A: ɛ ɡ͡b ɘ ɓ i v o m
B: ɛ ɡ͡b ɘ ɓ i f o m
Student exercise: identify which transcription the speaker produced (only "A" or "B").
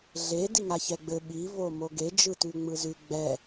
A